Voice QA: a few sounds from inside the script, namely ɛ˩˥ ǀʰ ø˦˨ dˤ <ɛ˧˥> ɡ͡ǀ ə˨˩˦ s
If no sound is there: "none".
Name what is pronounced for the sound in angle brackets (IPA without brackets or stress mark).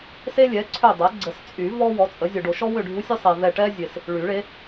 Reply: ɛ˩˥